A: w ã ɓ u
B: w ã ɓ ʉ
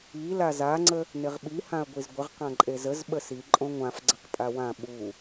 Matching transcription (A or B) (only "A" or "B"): A